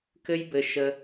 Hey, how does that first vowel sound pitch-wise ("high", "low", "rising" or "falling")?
high